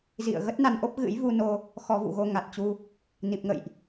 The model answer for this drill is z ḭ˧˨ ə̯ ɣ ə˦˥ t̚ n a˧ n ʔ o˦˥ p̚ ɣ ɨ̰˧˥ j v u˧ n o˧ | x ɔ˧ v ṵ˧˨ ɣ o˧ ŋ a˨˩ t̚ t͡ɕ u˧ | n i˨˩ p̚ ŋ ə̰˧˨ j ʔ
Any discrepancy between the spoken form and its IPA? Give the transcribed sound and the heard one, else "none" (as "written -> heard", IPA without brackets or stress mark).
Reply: none